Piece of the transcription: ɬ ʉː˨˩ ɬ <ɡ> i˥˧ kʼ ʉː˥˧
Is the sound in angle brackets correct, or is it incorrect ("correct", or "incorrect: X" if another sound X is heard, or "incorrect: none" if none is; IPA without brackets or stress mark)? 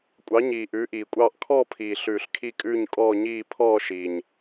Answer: incorrect: kʰ